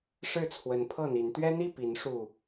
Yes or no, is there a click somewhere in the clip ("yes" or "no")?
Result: no